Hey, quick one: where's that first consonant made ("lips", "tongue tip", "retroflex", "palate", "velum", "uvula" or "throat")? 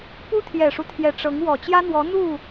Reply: lips